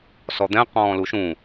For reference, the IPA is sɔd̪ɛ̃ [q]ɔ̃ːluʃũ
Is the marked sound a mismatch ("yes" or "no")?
no